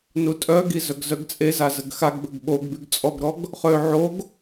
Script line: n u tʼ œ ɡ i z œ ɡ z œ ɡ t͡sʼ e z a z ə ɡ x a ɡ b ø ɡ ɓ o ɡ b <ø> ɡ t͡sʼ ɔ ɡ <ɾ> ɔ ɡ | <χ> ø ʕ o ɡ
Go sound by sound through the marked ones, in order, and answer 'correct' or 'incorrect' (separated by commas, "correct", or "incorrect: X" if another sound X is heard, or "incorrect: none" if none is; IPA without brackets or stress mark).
incorrect: y, correct, correct